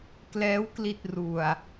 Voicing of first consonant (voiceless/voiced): voiceless